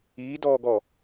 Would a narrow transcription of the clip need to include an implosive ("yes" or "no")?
no